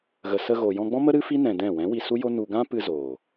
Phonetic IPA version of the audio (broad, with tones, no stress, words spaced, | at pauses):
ɣə˨sə˧ɣo˨ jɔ̃˧ɡ͡bɔ̃˦mə˦ ɾɨ˦fi˦ nɛ̃˧dɛ̃˦˨ wɛ̃˨˦ wi˧su˦jo˦nu˧ ɡã˦pɨ˧ zoː˨